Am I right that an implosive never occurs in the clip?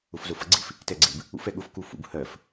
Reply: no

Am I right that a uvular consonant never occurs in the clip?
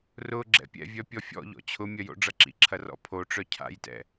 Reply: yes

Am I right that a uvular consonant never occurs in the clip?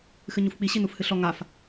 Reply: yes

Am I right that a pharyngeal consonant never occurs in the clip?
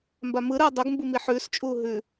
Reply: no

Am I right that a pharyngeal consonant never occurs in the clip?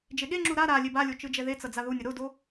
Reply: yes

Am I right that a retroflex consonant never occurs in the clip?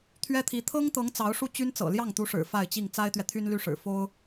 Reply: no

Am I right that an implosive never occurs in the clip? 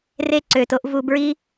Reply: yes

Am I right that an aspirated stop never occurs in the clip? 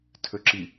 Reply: no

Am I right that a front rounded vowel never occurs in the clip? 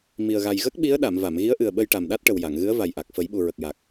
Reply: yes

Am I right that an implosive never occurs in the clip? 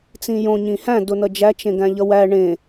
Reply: yes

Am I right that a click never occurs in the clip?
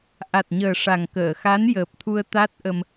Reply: yes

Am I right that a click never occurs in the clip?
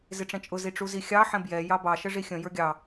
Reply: yes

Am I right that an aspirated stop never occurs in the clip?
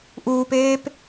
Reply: yes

